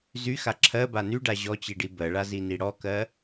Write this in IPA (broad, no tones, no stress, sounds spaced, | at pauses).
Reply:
z y x a ǁʰ ɜ b a n y ɖ a ʑ ɔ t͡ɕ i ɖ i b ɜ ɭ a z i n i ɽ ɔ k ɜ